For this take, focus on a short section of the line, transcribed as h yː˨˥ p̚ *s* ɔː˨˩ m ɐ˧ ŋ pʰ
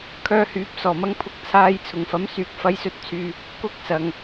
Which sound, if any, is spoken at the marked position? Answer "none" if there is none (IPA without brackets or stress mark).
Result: s